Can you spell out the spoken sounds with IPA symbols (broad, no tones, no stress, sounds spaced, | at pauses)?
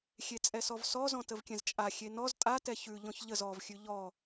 xʲ e t͡sʼ ɛ s ɔ v s ɔ z ɔ̃ t ə v kʲ ɛ̃ z t͡ʃʼ a xʲ e n ɔ z tʼ a t ɛ ç ʉ ʎ ɔ̃ ç ʎ ə z ɔ v xʲ ʉ ʎ ɔ